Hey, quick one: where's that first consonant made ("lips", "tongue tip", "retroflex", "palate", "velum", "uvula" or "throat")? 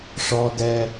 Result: retroflex